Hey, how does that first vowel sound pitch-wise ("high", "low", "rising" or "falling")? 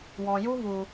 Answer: low